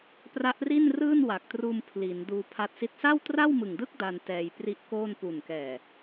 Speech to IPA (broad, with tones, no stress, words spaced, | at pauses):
pra˦˥ʔri˥˩nrɯː˥˩n wa˨˩k̚truː˧m pʰliː˩˦nduː˧pʰa˦˥t̚si˥˩t̚ sa˥˩wtra˥˩wmɯ˨˩ŋdɯ˥˩k̚ da˧n tɛː˧jpri˦˥ʔko˥˩n pu˨˩nkɛː˨˩